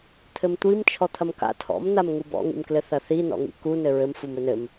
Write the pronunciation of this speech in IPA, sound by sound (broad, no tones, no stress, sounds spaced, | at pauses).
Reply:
t̪ʰ ɘ m tʷ i m t͡ʃʰ ɔ t̪ʰ ɐ m k a̰ tʰ ɔ̰ m n̪ a m ŋ u b ɔ̰ ŋ ḭ m k l ɘ θ ɐ θ i n ɔ̰ ŋ ḭ k u n ɘ ɹ ɘ m f u m ɘ n ɘ m